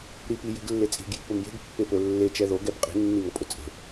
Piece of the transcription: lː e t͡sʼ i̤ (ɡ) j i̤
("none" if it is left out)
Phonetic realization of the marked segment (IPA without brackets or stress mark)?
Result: ɡ